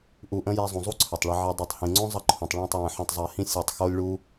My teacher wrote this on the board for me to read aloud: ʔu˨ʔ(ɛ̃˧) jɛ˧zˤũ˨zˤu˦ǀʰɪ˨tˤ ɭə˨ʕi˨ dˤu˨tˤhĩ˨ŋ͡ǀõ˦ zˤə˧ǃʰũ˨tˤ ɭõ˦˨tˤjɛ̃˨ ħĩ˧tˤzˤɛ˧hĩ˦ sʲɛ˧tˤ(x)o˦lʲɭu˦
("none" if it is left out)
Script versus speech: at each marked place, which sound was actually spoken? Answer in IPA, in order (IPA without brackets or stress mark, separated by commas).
ə̃˧, x